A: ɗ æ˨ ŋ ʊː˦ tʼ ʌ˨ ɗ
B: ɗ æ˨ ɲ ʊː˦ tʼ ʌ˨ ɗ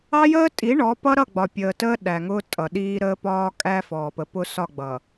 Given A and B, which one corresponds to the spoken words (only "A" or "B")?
A